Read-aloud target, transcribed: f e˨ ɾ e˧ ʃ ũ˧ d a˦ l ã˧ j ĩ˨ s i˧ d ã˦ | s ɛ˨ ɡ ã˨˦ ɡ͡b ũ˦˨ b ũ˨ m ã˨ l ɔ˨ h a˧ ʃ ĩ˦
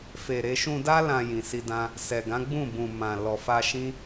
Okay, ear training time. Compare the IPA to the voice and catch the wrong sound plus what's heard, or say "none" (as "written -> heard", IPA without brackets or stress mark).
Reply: h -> f